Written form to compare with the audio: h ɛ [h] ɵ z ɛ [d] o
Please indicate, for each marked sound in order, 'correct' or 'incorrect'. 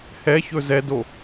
incorrect: ç, correct

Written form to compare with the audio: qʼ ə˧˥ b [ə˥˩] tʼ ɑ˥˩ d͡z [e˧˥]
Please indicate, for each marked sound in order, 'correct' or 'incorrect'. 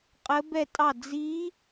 incorrect: ɛ˥˩, incorrect: i˧˥

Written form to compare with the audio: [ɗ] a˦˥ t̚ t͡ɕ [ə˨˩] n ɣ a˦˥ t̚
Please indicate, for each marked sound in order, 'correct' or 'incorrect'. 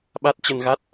incorrect: ɓ, incorrect: ə˧

